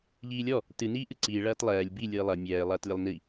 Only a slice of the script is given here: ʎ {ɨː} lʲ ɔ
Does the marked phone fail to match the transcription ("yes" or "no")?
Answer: yes